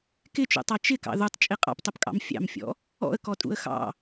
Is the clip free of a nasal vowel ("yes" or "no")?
yes